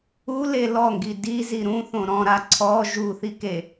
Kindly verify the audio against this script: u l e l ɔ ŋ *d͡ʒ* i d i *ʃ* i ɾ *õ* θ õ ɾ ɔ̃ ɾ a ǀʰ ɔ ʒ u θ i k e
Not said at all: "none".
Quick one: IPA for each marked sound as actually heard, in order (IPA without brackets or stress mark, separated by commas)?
ɡ, z, ũ